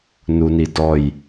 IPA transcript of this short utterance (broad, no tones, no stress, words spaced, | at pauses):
nunidɔj